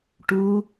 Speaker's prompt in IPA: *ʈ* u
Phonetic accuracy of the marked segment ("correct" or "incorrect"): correct